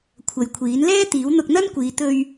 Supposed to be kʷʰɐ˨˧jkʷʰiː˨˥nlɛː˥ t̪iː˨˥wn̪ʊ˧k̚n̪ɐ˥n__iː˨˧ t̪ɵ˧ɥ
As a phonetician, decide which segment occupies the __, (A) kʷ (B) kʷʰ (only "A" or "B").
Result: A